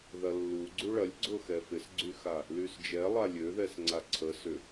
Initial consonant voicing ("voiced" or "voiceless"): voiced